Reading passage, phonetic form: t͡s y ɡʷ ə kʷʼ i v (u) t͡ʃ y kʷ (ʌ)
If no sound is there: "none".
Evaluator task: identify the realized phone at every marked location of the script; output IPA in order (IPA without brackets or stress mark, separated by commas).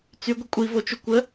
o, ə